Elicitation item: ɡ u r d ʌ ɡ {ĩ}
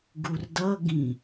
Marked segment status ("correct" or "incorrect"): correct